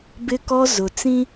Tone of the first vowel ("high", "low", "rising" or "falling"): high